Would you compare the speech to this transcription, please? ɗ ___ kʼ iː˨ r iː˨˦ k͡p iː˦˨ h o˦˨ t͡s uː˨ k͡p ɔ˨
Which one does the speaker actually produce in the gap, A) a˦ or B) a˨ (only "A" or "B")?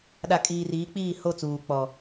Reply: B